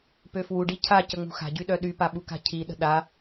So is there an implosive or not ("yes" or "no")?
yes